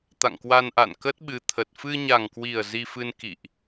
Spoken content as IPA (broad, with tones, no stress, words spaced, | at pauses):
t̪a̰˧˨ŋkwa˧nʔa̰˧˨n kə˦˥t̚ɓɨ˨˦t̪ʰə˨˩t̚ fɨ˧ɲa˨˩ŋkwi˨˩ə̯ zi˧fɨ˧n kḭ˧˨ʔ